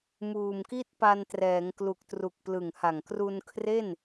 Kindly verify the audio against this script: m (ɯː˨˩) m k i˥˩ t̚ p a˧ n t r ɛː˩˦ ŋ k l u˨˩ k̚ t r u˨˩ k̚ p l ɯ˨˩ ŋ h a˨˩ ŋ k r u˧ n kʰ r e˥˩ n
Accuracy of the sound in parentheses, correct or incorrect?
incorrect: uː˨˩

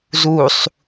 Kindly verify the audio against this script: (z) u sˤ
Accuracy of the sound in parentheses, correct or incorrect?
correct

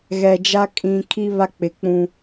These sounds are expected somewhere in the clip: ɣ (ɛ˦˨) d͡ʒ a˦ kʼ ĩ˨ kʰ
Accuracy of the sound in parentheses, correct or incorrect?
incorrect: ɛ˨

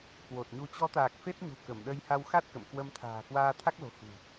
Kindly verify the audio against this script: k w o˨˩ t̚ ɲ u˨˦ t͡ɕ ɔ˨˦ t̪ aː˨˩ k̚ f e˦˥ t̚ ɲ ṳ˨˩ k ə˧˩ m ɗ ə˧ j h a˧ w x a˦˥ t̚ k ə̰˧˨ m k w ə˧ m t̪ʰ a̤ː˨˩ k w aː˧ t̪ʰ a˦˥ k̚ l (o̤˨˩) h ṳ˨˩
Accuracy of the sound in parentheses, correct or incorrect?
correct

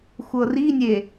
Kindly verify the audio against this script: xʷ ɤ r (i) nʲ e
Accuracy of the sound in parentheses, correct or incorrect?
correct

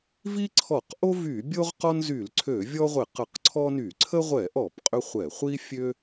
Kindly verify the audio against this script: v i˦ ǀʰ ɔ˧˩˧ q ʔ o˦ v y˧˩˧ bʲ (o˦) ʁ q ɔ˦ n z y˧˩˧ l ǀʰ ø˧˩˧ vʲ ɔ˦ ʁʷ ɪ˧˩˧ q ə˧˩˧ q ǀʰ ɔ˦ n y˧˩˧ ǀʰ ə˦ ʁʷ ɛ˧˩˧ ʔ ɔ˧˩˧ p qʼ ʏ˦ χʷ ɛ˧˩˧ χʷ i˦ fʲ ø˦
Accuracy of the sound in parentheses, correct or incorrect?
correct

